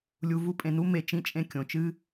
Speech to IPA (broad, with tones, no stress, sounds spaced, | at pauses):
lʲ u˨ v u˧ pʼ ẽ˨ n u˧ m e˨ t͡ʃ ĩ˧ t͡ʃʼ ẽ˧ kʲ õ˨ t͡ʃ ɨ˦